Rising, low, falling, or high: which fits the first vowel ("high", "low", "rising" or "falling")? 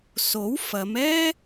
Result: rising